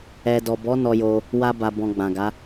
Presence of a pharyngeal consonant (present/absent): absent